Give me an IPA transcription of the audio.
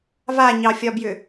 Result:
v a ɲ ɑ fʲ ɒ b j ʏ

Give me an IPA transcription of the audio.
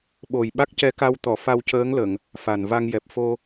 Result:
ɓ o˨˩ j ɓ a˦˥ k̚ c ɛ˧ k a˧ w t̪ ɔ˨˩˨ f a˧ w c əː˧˥ ŋ l ə˨˩˨ ŋ | f a˨˩ n v a˧ ŋ j ɛ˨˩ p̚ f o˧

